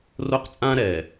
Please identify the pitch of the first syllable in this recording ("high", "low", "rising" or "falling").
high